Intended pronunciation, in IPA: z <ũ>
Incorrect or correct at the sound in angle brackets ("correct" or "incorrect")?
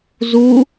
incorrect